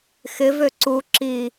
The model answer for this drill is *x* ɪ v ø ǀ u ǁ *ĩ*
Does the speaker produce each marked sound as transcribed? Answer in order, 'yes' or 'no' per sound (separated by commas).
yes, no